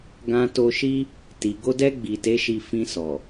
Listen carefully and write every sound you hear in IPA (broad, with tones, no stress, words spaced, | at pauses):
ɡã˧to˧ʃi˦ | ti˨ɡo˧dɛ˧ ɡ͡bi˨te˨˦ʃi˧ fĩ˧sɔ˨